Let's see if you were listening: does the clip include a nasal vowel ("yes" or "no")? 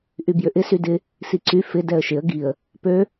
no